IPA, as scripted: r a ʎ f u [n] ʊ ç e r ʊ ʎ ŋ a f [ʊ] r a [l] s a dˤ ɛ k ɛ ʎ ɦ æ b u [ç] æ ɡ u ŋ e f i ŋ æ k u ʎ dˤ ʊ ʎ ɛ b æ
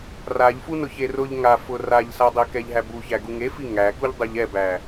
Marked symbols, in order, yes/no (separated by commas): yes, yes, no, yes